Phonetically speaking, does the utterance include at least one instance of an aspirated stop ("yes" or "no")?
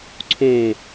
yes